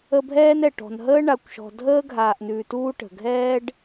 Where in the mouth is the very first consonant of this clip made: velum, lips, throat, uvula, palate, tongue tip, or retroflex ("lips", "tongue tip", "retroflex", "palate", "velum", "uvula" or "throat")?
lips